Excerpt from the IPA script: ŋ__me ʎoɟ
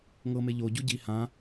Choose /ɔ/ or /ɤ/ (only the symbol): ɤ